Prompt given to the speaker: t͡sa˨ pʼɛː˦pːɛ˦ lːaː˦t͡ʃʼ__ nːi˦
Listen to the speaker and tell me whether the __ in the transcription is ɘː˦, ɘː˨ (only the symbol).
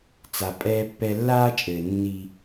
ɘː˨